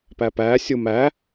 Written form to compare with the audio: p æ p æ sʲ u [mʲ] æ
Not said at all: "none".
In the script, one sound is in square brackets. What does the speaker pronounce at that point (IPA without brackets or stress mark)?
m